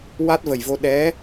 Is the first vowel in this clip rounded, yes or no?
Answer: no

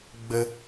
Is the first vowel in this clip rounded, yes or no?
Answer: no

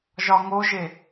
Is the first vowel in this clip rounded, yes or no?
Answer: yes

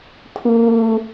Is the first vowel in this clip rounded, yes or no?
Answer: yes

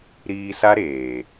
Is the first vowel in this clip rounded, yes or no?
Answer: no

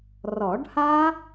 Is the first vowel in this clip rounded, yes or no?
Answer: yes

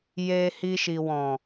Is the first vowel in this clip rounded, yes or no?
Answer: no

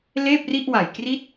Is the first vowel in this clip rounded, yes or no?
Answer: no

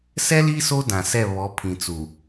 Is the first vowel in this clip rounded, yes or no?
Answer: no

